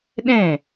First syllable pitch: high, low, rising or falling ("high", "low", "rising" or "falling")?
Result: falling